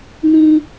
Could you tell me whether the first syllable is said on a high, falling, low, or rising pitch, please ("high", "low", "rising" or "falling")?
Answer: high